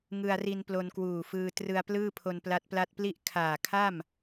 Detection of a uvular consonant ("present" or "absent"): absent